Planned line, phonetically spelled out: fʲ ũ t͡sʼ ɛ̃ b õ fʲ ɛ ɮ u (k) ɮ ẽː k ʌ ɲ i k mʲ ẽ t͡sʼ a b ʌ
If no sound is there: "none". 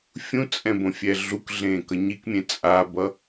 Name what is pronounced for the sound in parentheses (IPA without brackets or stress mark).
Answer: k